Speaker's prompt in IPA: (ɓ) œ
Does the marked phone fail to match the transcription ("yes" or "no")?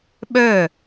no